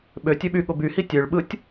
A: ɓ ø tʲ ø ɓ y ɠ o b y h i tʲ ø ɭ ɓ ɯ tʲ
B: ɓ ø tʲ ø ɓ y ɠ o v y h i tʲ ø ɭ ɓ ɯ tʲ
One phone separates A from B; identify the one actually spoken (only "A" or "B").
A